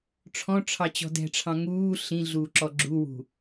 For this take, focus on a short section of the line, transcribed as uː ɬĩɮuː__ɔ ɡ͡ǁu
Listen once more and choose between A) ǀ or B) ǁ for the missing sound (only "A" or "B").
B